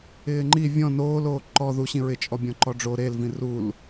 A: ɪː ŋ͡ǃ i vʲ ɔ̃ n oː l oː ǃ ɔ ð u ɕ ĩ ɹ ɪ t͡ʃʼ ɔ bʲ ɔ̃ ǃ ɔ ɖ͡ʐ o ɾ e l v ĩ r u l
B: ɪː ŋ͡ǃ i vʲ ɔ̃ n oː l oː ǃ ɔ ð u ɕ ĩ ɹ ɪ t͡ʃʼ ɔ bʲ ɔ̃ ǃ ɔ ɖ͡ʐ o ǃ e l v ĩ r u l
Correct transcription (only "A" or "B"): A